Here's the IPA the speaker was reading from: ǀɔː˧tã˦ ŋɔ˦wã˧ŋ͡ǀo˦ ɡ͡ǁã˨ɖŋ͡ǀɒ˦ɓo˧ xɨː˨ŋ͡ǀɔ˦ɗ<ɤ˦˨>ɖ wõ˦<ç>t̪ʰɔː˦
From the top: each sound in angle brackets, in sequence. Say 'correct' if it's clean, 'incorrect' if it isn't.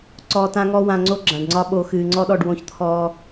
incorrect: ɔ˦˨, correct

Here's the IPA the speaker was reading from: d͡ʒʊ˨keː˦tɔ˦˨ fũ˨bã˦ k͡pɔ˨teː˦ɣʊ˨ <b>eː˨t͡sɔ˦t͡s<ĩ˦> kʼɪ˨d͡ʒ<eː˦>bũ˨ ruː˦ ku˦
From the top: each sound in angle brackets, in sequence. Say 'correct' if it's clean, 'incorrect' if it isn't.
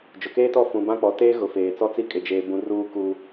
incorrect: f, incorrect: i˦, incorrect: eː˨

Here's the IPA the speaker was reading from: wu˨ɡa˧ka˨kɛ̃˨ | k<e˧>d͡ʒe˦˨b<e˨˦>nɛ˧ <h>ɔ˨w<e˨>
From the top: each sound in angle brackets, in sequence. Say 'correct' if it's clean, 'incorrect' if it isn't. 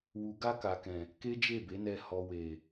incorrect: e˦, correct, correct, correct

